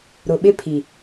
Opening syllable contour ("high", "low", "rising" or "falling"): low